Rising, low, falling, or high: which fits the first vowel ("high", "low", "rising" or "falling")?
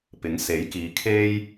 rising